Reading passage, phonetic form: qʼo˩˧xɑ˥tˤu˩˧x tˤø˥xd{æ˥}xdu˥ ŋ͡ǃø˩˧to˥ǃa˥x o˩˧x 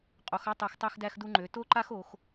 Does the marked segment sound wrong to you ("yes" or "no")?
no